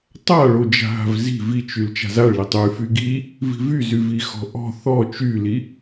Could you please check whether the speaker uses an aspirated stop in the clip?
no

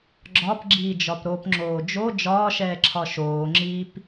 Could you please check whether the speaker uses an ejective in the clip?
no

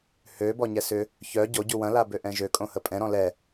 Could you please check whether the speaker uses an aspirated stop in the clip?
no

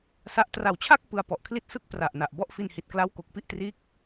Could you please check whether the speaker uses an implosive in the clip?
no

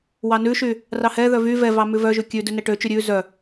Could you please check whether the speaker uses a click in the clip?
no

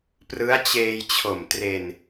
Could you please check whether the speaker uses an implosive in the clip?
no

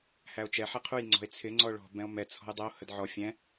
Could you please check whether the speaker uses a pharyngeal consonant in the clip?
yes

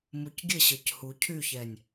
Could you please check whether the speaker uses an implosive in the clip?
no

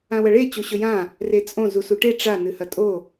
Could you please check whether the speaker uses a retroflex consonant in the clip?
yes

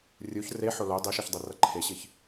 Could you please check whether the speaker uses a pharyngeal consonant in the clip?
yes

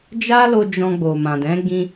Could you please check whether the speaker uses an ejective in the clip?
no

